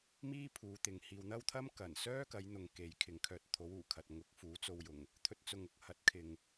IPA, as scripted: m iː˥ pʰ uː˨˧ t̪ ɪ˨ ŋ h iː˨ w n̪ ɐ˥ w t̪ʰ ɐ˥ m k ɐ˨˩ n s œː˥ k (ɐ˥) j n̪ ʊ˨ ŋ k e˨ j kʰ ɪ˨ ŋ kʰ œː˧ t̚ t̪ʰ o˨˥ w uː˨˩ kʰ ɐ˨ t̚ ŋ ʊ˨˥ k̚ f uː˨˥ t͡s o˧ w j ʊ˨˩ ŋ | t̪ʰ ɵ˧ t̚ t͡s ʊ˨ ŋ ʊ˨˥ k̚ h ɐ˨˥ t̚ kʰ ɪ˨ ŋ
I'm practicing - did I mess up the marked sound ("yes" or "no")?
yes